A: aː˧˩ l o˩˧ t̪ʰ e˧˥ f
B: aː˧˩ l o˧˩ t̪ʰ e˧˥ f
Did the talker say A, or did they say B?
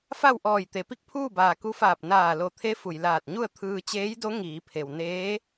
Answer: B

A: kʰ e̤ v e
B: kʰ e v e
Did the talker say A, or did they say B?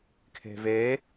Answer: A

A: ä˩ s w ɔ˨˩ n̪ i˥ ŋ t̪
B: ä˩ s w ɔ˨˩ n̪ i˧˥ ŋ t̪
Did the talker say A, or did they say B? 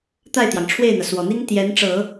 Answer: A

